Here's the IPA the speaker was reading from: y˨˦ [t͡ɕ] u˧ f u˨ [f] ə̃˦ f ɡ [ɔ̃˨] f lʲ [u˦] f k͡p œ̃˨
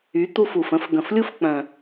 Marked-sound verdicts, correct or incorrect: incorrect: t̪, correct, incorrect: ə̃˨, correct

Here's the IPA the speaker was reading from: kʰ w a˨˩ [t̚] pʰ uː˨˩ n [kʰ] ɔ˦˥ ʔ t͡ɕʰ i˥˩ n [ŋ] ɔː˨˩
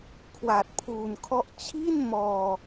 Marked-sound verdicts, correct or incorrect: correct, correct, incorrect: m

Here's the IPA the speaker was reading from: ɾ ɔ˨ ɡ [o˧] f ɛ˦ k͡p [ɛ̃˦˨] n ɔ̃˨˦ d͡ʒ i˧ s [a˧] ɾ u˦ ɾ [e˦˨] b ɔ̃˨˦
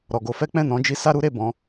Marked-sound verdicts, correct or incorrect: correct, correct, incorrect: a˦, correct

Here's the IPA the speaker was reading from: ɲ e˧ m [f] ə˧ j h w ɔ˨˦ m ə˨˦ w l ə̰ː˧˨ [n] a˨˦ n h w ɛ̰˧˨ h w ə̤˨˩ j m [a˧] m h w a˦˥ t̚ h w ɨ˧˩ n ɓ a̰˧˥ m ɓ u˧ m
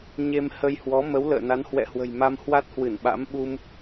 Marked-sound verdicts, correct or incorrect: incorrect: h, correct, correct

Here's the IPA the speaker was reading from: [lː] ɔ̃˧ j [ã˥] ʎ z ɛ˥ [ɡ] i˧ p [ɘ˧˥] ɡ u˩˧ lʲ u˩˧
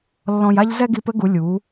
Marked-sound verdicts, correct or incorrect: correct, incorrect: a˥, correct, correct

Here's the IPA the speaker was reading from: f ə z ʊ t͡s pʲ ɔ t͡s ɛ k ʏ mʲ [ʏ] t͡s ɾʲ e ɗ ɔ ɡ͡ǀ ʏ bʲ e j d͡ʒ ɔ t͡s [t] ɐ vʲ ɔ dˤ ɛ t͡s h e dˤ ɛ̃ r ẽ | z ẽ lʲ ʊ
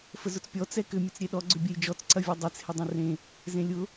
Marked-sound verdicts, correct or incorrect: incorrect: ə, incorrect: ǀ

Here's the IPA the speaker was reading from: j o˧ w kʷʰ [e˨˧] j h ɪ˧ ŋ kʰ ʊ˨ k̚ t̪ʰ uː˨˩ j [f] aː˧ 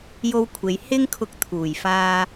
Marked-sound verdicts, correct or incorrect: correct, correct

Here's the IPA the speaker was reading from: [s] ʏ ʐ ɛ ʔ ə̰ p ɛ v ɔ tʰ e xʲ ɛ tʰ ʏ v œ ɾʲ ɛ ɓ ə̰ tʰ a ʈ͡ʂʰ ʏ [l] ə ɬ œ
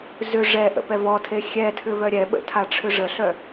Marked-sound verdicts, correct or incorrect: incorrect: z, incorrect: ʐ

